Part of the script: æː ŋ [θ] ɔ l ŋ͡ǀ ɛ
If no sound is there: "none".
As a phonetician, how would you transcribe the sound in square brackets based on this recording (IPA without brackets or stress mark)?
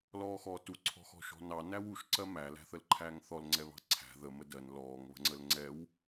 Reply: θ